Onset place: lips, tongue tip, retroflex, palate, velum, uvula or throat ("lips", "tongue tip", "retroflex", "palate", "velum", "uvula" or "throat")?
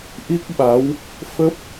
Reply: throat